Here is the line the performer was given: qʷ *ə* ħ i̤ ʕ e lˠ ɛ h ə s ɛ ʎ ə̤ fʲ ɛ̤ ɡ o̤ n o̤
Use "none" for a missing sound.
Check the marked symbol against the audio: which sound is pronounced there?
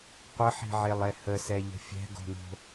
ə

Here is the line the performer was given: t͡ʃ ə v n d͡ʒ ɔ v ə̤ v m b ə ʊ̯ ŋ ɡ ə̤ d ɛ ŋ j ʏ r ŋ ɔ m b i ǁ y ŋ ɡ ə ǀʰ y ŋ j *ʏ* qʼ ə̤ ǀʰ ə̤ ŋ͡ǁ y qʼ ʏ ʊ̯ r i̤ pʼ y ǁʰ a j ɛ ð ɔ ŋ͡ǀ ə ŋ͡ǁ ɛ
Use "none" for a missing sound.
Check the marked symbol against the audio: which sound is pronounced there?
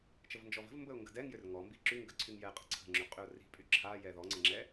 ɛ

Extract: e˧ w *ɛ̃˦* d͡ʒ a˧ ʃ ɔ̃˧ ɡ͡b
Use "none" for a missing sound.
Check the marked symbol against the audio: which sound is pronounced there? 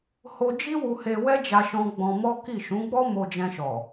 ɛ˦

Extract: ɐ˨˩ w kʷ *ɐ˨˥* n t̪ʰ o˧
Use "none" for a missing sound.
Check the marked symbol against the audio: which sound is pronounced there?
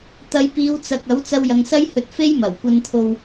ɐ˧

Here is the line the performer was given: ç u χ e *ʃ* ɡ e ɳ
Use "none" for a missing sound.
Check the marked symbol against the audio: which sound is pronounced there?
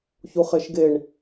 ʃ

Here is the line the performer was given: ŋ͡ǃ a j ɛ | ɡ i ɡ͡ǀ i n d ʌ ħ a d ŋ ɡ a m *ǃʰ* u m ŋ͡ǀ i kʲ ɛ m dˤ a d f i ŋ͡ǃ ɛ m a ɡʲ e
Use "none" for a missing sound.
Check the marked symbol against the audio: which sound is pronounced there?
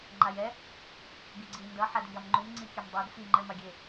ŋ͡ǃ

